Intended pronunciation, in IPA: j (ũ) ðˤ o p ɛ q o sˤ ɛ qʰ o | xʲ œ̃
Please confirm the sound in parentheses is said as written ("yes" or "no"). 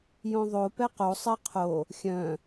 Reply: no